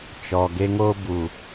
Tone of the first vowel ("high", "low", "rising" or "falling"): low